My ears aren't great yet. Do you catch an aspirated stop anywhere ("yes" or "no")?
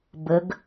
no